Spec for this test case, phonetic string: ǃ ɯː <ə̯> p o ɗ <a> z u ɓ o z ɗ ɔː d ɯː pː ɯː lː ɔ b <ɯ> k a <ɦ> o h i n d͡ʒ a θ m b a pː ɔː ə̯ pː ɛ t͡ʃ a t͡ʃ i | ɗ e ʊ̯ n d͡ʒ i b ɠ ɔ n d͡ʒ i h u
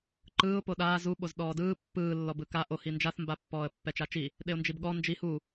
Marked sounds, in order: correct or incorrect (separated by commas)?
incorrect, incorrect, correct, incorrect